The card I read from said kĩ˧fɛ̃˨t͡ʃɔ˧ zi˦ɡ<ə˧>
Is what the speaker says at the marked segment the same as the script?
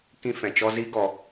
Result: no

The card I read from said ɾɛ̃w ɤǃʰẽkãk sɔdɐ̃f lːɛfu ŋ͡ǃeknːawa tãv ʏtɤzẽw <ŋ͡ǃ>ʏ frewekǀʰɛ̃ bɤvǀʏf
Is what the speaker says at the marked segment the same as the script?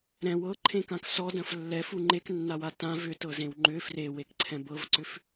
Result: yes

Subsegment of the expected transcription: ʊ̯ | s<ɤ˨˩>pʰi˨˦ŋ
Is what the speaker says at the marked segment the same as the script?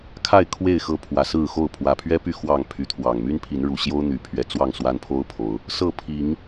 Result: no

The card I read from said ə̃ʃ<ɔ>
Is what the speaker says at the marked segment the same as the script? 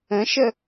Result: no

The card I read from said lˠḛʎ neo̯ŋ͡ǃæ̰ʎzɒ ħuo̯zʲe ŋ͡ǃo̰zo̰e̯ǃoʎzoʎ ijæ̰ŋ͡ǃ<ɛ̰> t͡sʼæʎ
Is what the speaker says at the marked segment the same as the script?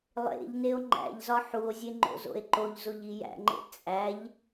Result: no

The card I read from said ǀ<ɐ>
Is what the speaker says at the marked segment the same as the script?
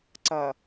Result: yes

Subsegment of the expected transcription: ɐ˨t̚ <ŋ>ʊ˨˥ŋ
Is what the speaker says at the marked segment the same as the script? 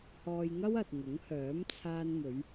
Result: yes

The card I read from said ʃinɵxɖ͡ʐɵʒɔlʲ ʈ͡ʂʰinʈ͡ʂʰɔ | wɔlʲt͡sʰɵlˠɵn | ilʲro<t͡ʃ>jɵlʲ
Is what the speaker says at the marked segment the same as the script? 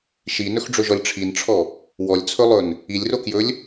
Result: no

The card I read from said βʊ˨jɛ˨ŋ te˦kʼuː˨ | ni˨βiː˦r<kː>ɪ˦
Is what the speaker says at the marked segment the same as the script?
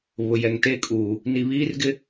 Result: no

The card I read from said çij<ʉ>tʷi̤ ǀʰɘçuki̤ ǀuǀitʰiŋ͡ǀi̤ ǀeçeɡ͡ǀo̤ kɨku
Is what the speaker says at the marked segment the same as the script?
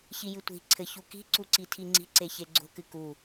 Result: no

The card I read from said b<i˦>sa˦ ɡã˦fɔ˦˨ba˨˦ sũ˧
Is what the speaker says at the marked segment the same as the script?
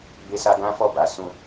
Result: no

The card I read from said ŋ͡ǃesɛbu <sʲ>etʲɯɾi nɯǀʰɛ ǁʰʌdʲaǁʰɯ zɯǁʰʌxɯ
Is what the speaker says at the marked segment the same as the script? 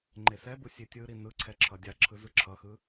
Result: yes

